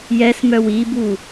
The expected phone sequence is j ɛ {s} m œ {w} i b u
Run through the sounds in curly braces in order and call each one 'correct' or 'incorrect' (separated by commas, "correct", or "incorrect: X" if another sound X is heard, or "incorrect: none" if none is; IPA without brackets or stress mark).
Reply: correct, correct